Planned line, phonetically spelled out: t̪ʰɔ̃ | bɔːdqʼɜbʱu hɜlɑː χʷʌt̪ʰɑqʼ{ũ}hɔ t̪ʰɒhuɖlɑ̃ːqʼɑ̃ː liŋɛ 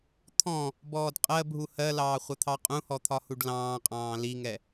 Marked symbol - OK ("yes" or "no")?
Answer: yes